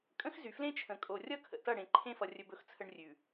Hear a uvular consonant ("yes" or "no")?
no